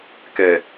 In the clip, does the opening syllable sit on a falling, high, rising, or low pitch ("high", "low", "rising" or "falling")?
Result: low